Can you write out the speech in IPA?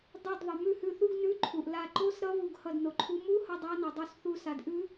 dˤo˧˩d ðˤʌ˩ mʉ˧˩hʉ˧˩θu˧˥˧ɡ nʉ˧˥˧ǃʰu˩ʔla˧˩ ǃo˧˥˧sɾʌ˧˥ βu˧˩ɡhʌ˧˩dno˩ǃʰu˧˥ mu˧˥˧hʌ˧˩ dˤa˧˥nʌ˩dˤu˧˩sθu˧˩ sa˩dʔʉ˧˥

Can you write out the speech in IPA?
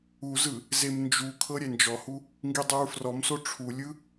uzɯ | zemnd͡ʒukʰɤ ɾʲɛnd͡ʒɔhu | ŋɡidˤɯɹfrɔmso ʈ͡ʂʰulʲɯ

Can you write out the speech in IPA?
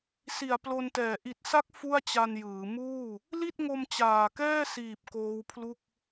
si˨˩a̯ plo˧ntɛː˨˩ ʔi˨˩t̚sa˦˥k̚ fu˥˩a̯t͡ɕa˧njɯː˩˦ muː˥˩ | li˥˩t̚ŋo˧m t͡ɕaː˨˩kɛː˥˩siː˨˩p̚ koː˦˥wpʰlu˥˩k̚

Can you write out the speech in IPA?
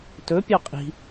tɵpʲɑ qʼi̤

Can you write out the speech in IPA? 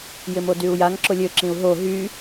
jɪmodyu̯jaŋ ǁʊlʲø ǁĩu̯ɦo ɦy

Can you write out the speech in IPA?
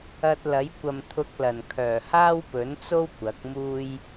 ɐ˧t̚lɐ˨˥j kʷɐ˨mt̪ʰʊ˧k̚lɐ˨˩n kʰœː˨˩haː˥wpɵ˨˥nt͡so˥w kʷɐ˨˥k̚muː˥j

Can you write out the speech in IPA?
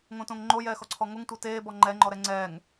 ŋõtõŋŋ͡ǃo jɛːxɔǀʰɔŋoŋ tʷɤteː bɔŋ͡ǃɛ ŋ͡ǃɔɾɛŋ͡ǀɛːŋ

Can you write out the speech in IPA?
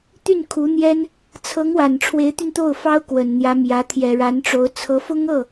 t̪y˥˩nkʰu˧˥n̪jɛ˥n | t͡sʰɤ˧˥ŋwa˨˩n ʈ͡ʂʰwe˧˥ɪ̯t̪y˧n t̪o˥˩ʊ̯fɑ˥ʊ̯ kwə˨˩nn̪jä˧˥mjä˧˥ t̪ʰjɛ˨˩ɻa˧˥nʈ͡ʂo˧˥ʊ̯ t͡sʰɤ˧˥fʊ˥ŋɤ˥˩

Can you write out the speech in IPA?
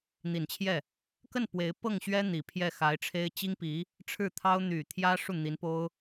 n̪i˨˩nt͡ɕʰjɛ˥˩ | kə˥˩n pwe˧˥ɪ̯ pɤ˥˩ŋɕɥɛ˥ n̪i˨˩pʰjɛ˥˩ xa˧˥ɪ̯ʈ͡ʂʰe˥ɪ̯ t͡ɕi˥ŋpi˧˥ | ʈ͡ʂʰɻ̩˥˩t̪ʰɑ˥ʊ̯ n̪y˨˩t̪ʰjä˥ ʂu˥˩n̪i˧˥npo˥ʊ̯

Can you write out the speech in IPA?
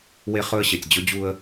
we˦χɵ˦ə̯ɕe˨tʲ d͡ʑɵ˦ d͡ʑu˦ə̯

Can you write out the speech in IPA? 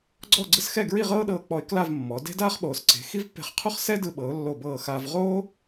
ɡ͡ǀɔ˥˧ɡ͡ǀɯ˥sxɛ˥˧ ɡɹi˥˧ʁɤː˥ɗɤː˧k͡pɔ˧ɪ̯ kla˥˧vmːɔ˩˧ de̤˥ daː˥χ ɓoː˩˧sǀe̤˩˧ xi˥vpːe̤˧χqʰu˥χ sɛ˥dɯ˧ ɓɤ˩˧ʊ̯lːo˧˩ bɤː˧˩ xaː˧v ʁoː˥

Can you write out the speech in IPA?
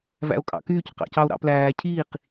væ̰o̯kʼɑ̰kyːc qɑ̰cɑo̯ɾɑ̰plæː cʰiːq

